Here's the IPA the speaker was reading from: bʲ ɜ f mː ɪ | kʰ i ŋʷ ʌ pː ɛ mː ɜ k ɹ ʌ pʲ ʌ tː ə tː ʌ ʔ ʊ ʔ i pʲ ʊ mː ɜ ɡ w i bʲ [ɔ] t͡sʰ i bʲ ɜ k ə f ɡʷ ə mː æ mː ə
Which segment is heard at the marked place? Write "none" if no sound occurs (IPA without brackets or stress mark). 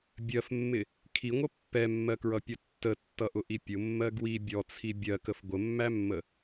ɔ